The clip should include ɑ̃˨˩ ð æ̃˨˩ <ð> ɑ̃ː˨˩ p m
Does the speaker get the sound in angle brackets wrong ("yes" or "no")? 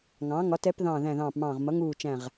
no